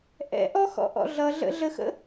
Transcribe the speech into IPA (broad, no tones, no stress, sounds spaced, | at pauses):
ʔ ɛ̰ ʔ ɔ x ɔ̰ ʔ ɔ̰ ɮ ʌ ɮ ə̰ ɮ ə x ə̰